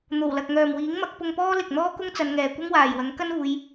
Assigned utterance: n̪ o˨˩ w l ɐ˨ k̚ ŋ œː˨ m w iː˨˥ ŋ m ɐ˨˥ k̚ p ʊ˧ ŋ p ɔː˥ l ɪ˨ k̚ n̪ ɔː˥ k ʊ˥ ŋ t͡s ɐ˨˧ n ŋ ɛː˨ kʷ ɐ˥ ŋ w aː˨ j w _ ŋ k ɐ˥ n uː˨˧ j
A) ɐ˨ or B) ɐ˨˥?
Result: B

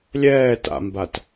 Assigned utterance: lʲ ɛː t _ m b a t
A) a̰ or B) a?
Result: A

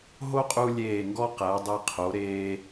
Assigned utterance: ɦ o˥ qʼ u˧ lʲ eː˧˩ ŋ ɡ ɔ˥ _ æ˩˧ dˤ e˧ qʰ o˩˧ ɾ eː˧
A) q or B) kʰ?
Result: A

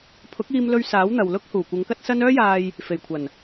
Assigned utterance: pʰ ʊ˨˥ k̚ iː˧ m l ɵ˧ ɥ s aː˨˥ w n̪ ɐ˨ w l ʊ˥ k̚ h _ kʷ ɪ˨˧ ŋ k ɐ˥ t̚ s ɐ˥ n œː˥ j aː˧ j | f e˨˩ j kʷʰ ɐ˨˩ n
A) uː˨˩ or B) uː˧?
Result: A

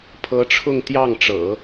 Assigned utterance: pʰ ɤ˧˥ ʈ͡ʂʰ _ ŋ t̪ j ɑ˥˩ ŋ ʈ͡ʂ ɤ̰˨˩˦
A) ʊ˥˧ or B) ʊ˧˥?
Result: A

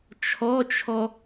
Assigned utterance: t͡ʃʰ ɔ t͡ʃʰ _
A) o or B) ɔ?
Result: B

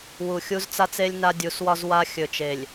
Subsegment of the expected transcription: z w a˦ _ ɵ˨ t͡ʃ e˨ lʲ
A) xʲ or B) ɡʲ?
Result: A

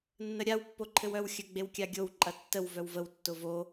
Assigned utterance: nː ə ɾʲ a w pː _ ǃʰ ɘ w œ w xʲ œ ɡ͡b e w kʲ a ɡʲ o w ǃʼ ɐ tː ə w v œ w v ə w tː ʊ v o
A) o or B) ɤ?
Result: A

